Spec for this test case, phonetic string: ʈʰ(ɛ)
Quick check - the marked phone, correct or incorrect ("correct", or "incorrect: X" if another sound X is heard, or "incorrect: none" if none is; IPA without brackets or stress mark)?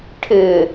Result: incorrect: ɪ